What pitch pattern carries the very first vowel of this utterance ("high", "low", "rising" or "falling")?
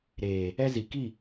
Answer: low